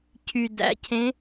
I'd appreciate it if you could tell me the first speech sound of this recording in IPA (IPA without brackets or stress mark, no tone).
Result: cʰ